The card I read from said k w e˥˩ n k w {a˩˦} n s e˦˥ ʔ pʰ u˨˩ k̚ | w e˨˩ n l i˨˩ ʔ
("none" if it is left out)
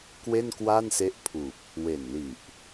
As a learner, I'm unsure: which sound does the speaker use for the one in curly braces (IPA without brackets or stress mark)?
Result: a˥˩